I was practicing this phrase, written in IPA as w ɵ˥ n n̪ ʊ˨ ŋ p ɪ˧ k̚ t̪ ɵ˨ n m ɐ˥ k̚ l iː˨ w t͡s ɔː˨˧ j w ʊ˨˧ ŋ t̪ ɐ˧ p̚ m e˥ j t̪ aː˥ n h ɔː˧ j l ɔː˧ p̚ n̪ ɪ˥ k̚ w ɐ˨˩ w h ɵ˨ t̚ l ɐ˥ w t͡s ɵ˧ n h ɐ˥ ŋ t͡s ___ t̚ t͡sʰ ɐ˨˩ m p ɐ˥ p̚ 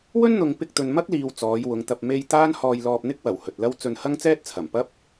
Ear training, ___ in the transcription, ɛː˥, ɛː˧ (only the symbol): ɛː˥